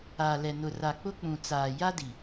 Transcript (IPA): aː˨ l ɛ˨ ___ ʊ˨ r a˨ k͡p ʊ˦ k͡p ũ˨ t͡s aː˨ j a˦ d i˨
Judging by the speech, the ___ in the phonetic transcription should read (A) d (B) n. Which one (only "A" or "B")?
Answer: B